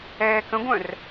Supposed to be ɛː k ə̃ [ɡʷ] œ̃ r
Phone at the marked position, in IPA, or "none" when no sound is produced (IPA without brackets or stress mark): ɡʷ